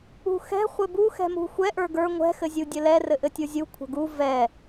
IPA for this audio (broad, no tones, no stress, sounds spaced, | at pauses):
ṳ x ɛ̤ χʷ ɘ b u x ɛ̤ m ṳ xʷ ɛ ʔ ə˞ ɡ ə˞ ŋʷ ɛ̤ x ɘ zʲ u dʲ ɘ l ɛ r ɘ ʔ ɘ tʲ u zʲ u kʷʰ ə̤ ɡ u v ɛ